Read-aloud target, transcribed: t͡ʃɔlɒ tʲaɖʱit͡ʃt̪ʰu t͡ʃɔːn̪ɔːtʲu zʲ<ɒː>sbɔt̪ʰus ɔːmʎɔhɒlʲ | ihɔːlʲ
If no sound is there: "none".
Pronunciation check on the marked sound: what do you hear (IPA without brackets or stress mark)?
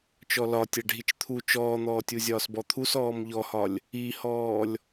ɒː